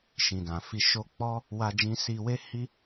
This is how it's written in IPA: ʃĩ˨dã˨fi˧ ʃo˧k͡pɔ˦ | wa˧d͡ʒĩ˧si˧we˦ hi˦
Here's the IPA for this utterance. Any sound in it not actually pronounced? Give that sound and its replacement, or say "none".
none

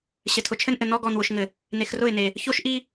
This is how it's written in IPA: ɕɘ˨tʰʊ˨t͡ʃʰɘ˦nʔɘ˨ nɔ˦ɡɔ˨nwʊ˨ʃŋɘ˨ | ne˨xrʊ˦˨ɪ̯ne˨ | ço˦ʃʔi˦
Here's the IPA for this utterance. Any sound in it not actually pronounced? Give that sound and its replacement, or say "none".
none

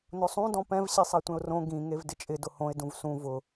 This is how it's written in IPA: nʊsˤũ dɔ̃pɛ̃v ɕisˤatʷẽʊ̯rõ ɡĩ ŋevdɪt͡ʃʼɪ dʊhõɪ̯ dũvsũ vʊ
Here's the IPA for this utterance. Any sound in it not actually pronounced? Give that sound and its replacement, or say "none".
none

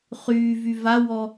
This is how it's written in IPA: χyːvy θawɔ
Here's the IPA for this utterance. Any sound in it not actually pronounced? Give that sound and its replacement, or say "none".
θ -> v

